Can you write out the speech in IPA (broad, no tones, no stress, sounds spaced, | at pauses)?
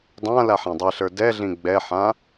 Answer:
dˤ ã l a ħ ã dˤ i ɬ ə˞ d ɛ ɮ ĩ ɡ͡b ɛ ħ ã